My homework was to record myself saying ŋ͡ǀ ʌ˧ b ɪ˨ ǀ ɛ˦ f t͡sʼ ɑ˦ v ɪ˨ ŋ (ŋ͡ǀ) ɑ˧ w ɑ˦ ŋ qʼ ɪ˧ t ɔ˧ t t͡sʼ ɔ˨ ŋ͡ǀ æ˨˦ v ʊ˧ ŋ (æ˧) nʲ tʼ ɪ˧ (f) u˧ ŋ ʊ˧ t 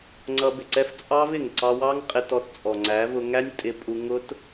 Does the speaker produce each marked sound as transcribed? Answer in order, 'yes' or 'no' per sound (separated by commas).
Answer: no, no, no